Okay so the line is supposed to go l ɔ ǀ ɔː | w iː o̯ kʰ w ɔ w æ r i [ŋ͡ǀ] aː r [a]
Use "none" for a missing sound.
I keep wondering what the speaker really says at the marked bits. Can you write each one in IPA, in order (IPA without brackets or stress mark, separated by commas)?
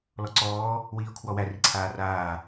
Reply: ǀʰ, aː